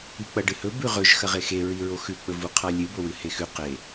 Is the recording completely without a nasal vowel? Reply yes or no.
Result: yes